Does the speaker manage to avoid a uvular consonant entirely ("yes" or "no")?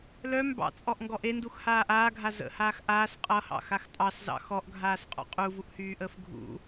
no